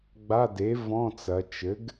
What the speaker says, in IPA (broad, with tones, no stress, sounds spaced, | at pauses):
ɡ͡b a˧˥˧ d e˩˥ v ɔ̃˧˥˧ t͡s ɐ˩˧ t͡ʃ ɘ˩˥ ɡ